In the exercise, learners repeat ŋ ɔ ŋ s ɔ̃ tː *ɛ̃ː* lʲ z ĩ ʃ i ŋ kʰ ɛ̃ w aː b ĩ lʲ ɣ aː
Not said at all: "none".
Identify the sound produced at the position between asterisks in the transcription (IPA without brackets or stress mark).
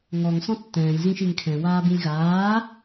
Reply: ɛ̃ː